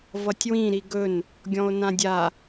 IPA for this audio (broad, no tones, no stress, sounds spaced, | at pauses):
v ʌ tʲ w ĩ ɾ i ɡ ɵ n | ɡʲ ɔ̃ o̯ n ã dʲ a